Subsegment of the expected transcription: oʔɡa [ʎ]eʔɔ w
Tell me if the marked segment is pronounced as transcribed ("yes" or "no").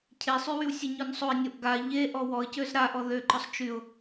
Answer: yes